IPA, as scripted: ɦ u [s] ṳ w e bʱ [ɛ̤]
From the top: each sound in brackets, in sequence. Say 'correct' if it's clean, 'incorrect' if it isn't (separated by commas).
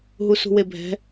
correct, correct